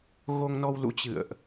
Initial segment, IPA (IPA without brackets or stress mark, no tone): ɣ